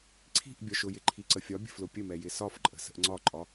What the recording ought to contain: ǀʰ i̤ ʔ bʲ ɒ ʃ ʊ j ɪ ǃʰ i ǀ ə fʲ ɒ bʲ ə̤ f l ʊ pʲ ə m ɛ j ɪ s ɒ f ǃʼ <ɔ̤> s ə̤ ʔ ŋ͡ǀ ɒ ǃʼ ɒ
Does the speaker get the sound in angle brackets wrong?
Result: yes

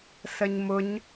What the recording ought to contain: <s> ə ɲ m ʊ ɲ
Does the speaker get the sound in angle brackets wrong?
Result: no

